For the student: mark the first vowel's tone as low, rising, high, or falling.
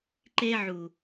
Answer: high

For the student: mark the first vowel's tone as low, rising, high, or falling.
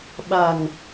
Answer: low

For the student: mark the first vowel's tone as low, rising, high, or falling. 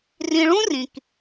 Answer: low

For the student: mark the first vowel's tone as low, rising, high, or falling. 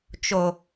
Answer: low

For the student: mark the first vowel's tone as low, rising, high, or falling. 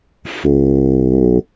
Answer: low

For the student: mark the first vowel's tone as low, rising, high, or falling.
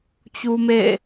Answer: high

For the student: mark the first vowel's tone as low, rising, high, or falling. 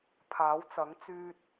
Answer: rising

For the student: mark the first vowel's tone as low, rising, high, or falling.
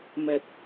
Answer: low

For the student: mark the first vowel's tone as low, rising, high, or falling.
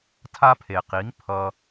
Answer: high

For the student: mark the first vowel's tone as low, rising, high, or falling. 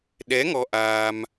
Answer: rising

